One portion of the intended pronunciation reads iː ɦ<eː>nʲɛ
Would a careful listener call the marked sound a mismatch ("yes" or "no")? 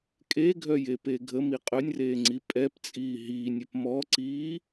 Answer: yes